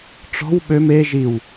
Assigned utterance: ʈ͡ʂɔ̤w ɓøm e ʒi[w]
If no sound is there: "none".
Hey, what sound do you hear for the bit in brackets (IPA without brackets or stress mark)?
w